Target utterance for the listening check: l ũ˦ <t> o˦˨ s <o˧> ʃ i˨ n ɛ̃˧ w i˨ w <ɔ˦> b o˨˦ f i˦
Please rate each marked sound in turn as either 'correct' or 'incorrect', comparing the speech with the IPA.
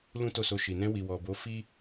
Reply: correct, correct, incorrect: ɔ˨

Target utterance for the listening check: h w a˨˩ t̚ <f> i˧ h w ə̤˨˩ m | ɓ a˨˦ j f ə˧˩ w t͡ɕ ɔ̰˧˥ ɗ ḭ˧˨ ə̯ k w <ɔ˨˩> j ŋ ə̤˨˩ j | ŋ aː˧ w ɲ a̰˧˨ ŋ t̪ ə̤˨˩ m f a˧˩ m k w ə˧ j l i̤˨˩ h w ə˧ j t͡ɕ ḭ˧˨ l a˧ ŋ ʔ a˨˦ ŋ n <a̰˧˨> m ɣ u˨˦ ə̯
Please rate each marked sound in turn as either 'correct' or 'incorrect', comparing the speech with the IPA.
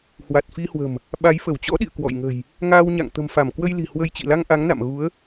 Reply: correct, incorrect: ɔ̰˧˨, correct

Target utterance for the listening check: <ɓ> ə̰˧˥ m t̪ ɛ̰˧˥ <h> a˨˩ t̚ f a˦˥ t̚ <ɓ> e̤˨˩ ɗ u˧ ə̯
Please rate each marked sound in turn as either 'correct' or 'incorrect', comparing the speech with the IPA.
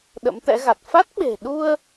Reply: incorrect: ɗ, incorrect: ɣ, correct

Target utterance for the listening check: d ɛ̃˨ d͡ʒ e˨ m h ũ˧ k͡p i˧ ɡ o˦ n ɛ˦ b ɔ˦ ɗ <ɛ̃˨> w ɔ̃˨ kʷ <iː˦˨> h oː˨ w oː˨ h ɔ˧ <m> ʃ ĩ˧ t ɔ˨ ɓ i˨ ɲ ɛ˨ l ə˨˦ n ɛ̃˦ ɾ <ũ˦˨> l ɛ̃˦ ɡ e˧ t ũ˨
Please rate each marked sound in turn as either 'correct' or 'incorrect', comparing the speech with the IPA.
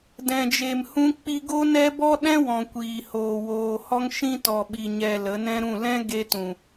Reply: incorrect: ɛ̃˦, incorrect: iː˨, incorrect: ŋ, correct

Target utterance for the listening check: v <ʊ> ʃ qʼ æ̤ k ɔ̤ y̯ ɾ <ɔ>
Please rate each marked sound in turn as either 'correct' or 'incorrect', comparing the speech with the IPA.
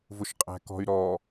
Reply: correct, correct

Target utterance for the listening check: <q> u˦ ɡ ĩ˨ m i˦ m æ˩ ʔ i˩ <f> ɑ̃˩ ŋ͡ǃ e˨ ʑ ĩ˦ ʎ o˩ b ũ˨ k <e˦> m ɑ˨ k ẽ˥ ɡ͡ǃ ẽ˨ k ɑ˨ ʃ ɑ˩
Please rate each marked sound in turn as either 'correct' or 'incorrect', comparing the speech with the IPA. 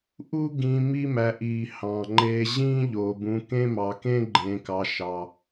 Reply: incorrect: ʔ, incorrect: h, incorrect: ẽ˦

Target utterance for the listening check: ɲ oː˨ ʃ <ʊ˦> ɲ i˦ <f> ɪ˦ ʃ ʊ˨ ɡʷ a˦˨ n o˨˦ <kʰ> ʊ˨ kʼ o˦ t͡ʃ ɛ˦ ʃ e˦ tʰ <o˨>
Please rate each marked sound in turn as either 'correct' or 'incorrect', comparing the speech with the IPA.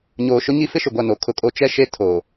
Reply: correct, correct, correct, correct

